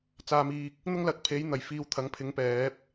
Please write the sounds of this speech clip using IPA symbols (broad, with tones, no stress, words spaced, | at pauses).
t͡saː˧miː˧k̚ | n̪ʊ˥ŋlɐ˨k̚pʰe˨˥j n̪ɐ˨˩jfiː˧wt̪ʰɐ˨˥ŋ pʰɪ˨˥ŋpɛː˨˥p̚